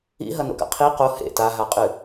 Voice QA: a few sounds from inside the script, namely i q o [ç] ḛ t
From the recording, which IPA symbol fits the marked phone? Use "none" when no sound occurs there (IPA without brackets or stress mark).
h